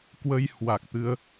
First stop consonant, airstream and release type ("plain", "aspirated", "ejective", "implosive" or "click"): plain